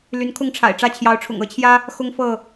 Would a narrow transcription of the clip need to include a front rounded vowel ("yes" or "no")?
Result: yes